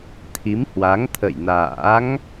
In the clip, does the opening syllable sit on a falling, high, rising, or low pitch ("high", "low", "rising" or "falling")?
rising